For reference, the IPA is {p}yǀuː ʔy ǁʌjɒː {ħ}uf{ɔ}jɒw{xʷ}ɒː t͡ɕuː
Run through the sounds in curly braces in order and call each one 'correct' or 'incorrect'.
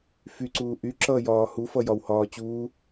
incorrect, incorrect, incorrect, incorrect

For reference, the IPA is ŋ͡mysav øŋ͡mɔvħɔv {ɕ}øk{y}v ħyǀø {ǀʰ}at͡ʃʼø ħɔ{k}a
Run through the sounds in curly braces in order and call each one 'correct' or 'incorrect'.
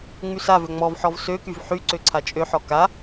incorrect, correct, correct, correct

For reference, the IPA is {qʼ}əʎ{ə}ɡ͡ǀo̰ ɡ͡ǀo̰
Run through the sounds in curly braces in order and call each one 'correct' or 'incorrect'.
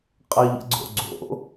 correct, incorrect

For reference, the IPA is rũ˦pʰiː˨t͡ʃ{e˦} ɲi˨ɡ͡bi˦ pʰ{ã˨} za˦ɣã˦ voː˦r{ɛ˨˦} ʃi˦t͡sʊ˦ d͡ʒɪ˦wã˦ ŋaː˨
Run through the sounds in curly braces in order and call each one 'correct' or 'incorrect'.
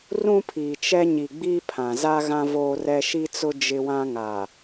incorrect, correct, incorrect

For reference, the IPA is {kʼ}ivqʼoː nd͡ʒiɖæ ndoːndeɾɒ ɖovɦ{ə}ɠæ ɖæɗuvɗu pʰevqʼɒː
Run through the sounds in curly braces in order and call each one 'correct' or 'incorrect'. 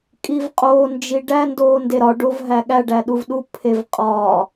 correct, incorrect

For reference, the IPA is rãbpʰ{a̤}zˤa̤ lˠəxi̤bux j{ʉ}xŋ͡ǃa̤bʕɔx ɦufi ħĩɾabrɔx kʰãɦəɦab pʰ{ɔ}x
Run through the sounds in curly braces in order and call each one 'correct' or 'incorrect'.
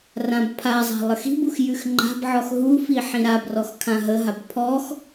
incorrect, correct, correct

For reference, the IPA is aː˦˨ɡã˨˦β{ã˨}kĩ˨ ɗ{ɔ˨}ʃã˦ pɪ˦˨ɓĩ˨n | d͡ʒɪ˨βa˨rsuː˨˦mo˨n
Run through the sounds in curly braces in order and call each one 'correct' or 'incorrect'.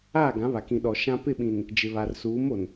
incorrect, correct

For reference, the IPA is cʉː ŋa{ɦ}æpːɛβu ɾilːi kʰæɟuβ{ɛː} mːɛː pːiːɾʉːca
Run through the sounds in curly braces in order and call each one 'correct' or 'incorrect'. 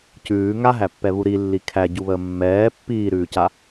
correct, incorrect

